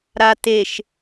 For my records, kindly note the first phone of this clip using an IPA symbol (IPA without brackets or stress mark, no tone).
ɾ